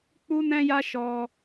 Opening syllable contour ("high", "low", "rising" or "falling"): high